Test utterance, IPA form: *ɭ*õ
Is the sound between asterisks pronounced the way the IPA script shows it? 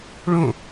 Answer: yes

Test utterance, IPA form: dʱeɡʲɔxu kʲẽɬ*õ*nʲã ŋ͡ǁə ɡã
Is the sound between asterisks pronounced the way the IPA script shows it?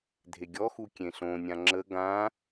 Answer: yes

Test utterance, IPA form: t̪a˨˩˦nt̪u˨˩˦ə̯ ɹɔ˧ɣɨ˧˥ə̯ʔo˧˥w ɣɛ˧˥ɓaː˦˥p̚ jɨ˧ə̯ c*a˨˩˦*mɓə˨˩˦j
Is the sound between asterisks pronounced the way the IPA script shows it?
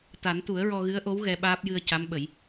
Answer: no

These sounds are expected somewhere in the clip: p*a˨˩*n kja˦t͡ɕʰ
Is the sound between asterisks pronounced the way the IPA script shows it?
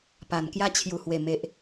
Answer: yes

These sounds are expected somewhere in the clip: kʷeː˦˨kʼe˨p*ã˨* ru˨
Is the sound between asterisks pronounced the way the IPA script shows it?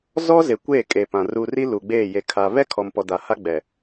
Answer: yes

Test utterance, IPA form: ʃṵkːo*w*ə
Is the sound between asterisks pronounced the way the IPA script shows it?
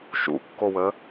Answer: yes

